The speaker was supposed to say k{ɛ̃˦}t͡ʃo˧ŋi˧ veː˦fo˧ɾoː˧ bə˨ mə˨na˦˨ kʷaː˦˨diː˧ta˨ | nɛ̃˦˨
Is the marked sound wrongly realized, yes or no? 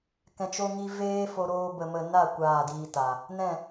yes